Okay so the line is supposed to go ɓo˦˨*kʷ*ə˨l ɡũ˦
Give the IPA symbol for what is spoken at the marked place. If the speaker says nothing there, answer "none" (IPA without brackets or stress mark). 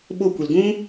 kʷ